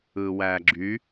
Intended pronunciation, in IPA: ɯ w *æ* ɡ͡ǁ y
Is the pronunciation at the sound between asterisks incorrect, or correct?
correct